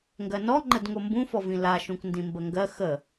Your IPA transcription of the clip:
ŋ ɡ ɜ n ɔ ŋ͡ǃ ə d ŋ o m b ũ f ɔ v ĩ l a ʃ ũ k n d ĩ m b ə ŋ ɡ ɜ x ə

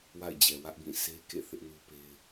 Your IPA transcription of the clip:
w a̰˦˨ ɪ̯ d͡ʑ ɛ˨ w ä˦ ʔ b ĩ˦˨ sʰ e˦ k ḛ˦˨ θ ɪ˦ ʔ n u˦ p e˦ ɪ̯

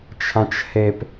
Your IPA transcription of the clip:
t͡ʃʰ ã t͡ʃ h e p

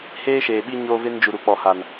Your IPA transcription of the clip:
h eː˦ ʃ eː˨ ɓ i˦ ɲ oː˦ v e˦ n d͡ʒ u˨ ɾ u˨ k͡p ɔ˨ h a˨ n

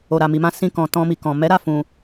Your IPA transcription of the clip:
o˨ ɾ a˨ m i˨ m ã˧ s ĩ˧ k ɔ̃˨ t ɔ̃˧ m i˨ k ɔ̃˨ m ɛ˨˦ ɾ a˦˨ f ũ˨

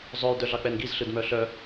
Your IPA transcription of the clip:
zˤ œ j d œ ɮ ɑ k͡p ɛ n ɡ i z ɬ ɯ d m œ ɬ œ

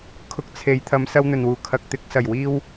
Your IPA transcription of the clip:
kʰ ʊ˧ k̚ t͡sʰ e˨˧ j t̪ʰ ɐ˨˧ m s ɐ˧ w n̪ ɵ˨˩ n w uː˨˩ kʰ ɐ˨ k̚ t̪ ɪ˨˥ k̚ s ɐ˨˩ j w iː˧ w

